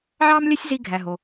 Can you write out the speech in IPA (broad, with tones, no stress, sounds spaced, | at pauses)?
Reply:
ʕ ɑ˥ m lʲ ɛ˥ sʲ z i˧ ɡʱ æ˩ ɦ o˩